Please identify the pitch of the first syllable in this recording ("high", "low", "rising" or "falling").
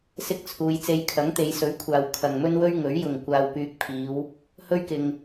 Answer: high